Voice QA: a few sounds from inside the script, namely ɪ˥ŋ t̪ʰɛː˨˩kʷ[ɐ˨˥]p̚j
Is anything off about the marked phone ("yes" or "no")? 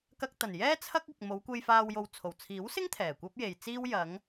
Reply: yes